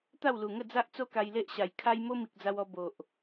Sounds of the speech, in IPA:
t̪a˥˧wlu˨˩ŋə˥˧ d͡za˦ʔt͡so˦ka˧j le˦ʔɕa˨˩j kʰa˦j mo˦mi˨k̚d͡za˧wɔ˧ bo˨ʔ

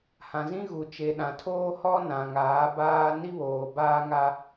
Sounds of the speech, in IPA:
hã˨zĩ˦ɣu˨ t͡ʃe˨ɗã˨tʰoː˦ hɔ˦ nã˨ŋaː˨˦baː˦ ni˦βoː˨ baː˦ŋa˦

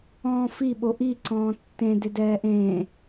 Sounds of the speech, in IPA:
ɔ̃ːfiɓo ʔiǀɔ̃ː tːẽ dɪdɛːʔẽː

